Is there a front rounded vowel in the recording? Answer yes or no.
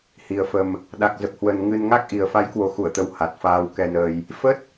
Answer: no